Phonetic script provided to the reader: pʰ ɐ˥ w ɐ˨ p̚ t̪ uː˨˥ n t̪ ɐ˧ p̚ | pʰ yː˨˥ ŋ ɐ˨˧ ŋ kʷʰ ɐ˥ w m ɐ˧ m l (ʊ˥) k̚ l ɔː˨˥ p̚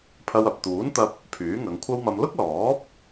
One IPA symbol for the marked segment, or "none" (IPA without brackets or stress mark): ʊ˥